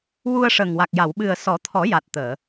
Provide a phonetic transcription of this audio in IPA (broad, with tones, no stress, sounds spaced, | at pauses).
w u˧ ə̯ ʂ əː˨˩ ŋ w a˨˩ k̚ j a˨˩˨ w ɓ ɨ˨˩ ə̯ s ɔ˨˩˦ t̪ʰ ɔ˨˩˦ j a˨˩ t̚ t̪ əː˨˩˨